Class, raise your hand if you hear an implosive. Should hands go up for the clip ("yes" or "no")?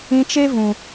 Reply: no